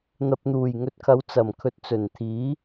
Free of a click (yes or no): yes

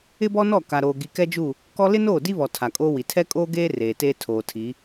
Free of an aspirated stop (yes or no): no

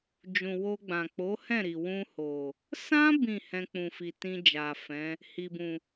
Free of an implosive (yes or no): yes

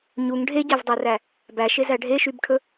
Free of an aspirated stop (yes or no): no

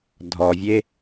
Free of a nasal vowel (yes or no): yes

